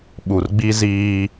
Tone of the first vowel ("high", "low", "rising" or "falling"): low